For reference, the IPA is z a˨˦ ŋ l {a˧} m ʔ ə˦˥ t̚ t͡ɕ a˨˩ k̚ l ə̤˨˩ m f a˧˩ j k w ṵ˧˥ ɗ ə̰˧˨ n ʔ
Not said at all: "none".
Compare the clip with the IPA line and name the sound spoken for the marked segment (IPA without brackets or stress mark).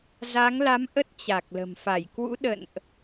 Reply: a˨˦